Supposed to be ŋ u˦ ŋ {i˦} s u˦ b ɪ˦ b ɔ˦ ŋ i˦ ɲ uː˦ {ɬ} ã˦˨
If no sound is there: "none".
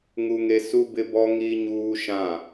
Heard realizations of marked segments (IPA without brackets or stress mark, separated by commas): e˦, ʃ